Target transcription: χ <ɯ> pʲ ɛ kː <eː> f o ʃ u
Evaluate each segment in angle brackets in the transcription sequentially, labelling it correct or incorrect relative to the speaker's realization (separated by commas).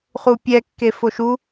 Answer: incorrect, incorrect